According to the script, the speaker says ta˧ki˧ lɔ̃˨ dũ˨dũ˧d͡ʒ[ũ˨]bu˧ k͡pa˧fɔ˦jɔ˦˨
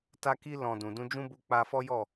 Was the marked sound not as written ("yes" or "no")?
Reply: yes